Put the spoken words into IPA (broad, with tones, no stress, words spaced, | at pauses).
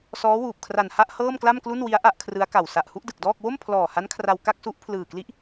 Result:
sɔː˦˥wuː˨˩p̚kʰra˨˩nha˥˩ʔ hɤː˥˩mkla˥˩mklu˥˩nwi˦˥a̯ ʔa˦˥ʔkʰrɯ˦˥a̯ka˨˩w sa˨˩ʔhu˥˩ʔdɯ˨˩k̚dɔː˥˩k̚ wo˥˩m pʰlɔː˨˩ha˦˥nkʰra˧w ka˥˩k̚su˦˥ʔpʰlɯː˨˩kli˦˥ʔ